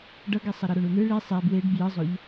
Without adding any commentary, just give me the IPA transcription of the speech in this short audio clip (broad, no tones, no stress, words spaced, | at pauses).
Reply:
ɖʌɡesˤʌɾʌ ɾoɳunɯ ɭi sˤɛ bweɖ bjɯzˤoʎ